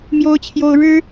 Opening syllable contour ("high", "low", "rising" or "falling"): high